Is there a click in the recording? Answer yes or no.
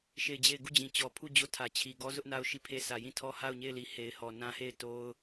no